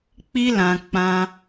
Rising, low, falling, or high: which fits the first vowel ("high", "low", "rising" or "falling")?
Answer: high